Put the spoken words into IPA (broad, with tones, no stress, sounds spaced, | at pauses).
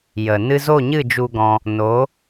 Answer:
j ə˨ n ɨ˧ z o˦˨ ɲ ɨ˦˨ d͡ʒ u˧ ɡ ɔ̃˧ | n o˨˦